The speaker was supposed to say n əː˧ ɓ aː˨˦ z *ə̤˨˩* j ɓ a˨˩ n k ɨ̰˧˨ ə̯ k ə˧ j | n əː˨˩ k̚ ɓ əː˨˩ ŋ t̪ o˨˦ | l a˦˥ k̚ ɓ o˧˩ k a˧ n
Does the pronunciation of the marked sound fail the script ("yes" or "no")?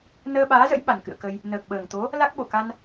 yes